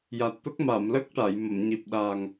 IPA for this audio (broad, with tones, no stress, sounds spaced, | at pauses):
j a˨˩ t̚ t̪ ə˦˥ k̚ m a˨˩˨ m l ə˦˥ k̚ ʈ a˨˩˨ j m ə˨˩˨ m ɲ i˨˩ p̚ ɗ aː˨˩ ŋ